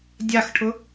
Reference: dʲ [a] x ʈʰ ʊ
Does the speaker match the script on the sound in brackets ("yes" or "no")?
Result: yes